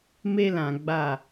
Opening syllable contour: high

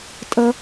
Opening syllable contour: high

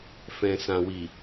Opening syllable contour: low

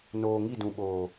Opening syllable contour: low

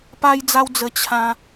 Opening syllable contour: high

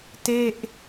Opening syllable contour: falling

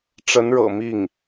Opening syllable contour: rising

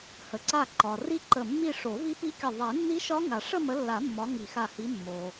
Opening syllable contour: low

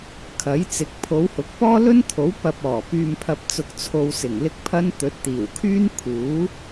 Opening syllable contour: rising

